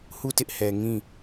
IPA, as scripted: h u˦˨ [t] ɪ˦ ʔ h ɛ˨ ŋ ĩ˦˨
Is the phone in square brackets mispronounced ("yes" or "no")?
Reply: no